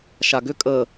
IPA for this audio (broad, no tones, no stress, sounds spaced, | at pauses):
ʃ a ɡ ʏ kʼ ə